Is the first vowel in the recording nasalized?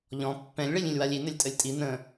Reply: yes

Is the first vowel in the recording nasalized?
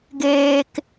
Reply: no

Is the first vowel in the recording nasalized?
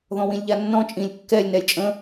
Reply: yes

